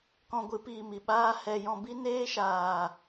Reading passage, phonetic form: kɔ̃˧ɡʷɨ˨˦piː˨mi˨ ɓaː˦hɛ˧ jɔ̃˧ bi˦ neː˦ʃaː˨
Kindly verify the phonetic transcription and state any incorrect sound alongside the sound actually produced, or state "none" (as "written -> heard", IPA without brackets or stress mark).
none